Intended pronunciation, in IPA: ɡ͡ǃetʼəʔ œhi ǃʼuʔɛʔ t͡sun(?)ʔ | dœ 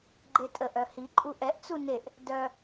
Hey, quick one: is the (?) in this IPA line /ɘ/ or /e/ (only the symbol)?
e